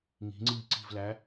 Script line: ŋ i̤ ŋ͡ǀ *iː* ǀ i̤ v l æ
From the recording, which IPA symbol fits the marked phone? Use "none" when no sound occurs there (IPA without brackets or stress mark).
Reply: iː